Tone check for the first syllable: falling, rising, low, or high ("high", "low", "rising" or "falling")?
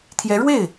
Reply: rising